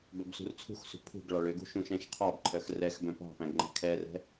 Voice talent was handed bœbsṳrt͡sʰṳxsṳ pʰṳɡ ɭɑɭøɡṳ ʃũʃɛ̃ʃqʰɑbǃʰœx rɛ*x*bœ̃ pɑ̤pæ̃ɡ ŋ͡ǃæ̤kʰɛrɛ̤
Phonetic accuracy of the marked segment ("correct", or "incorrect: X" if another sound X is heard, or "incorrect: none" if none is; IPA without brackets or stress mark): correct